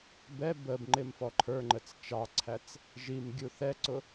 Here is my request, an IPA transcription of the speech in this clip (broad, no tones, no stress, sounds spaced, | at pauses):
b ɛ b ə b ŋ͡ǃ ɪ m f ɔ ǃʰ ə˞ ŋ͡ǃ ə t͡s t͡ʃ ɑ ǀʰ æ t͡s | ʒ i m ɡʲ u θ ɛ ǀ ʊ